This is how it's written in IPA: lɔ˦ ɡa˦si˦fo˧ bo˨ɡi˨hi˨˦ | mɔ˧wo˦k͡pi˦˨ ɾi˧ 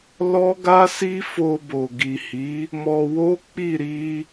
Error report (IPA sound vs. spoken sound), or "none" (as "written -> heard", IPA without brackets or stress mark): none